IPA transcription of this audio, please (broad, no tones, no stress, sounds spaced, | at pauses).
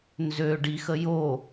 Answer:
n z ø ɖ i x ə j o